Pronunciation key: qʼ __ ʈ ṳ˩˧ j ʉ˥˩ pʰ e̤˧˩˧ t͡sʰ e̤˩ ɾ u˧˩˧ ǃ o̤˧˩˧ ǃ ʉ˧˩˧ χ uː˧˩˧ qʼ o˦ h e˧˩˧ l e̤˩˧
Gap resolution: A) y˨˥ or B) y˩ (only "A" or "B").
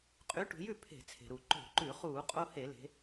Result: A